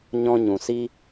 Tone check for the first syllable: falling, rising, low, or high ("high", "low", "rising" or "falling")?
high